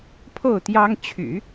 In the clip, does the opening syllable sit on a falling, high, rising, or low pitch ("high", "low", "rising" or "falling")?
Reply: falling